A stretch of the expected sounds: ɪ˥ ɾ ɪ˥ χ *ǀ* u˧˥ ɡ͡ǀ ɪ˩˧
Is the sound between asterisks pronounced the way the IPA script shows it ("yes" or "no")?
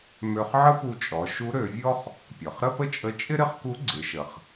no